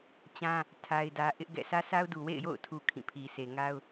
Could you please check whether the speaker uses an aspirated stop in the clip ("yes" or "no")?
yes